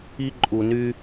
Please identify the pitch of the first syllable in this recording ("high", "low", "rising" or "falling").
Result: high